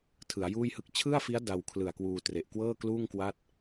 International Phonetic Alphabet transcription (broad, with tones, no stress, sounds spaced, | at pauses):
tʰ ɯ˩˦ a̯ j uː˥˩ j h ɯ˥˩ k̚ t͡ɕʰ ɯ˥˩ a̯ f i˦˥ a̯ d a˧ w kʰ l ɯ˨˩ a̯ k w uː˧ t r e˨˩ ʔ k w ɤː˥˩ k l uː˥˩ ŋ k w a˥˩ t̚